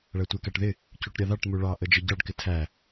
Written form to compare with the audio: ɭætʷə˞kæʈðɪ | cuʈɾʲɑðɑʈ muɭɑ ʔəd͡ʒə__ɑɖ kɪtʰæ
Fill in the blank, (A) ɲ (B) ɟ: B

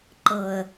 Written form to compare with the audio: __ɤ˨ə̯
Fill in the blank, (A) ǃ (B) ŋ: A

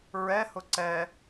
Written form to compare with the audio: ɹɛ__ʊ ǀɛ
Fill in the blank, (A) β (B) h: B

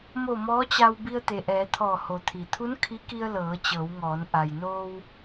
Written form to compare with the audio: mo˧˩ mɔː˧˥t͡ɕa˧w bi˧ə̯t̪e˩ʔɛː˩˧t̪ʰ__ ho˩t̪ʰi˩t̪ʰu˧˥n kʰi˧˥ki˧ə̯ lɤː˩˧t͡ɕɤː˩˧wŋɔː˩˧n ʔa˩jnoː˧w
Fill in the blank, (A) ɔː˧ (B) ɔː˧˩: B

